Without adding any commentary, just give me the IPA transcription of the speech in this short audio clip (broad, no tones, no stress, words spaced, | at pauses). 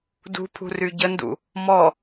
dṳpʰṳ ryɟəndṵ | mɔ